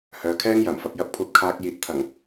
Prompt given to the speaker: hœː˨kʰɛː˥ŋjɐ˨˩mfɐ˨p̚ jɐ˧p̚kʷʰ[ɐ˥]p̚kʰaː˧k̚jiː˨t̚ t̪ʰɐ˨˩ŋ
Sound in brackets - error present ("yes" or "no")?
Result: yes